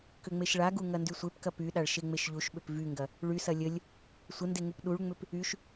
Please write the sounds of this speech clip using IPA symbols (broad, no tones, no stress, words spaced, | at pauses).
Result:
kʏŋ͡meʃɭaɡu ŋɐndysʷepkɐ pyɗaɭ ʃeŋ͡meʃʎuʃɓʏp vyŋɡɐ | ɭysɐ lʲəlʲ | sʷənde ŋupɗuɭŋ͡mʏp | yʃ